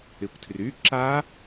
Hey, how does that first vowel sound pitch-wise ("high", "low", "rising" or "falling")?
low